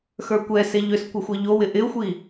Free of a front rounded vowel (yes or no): no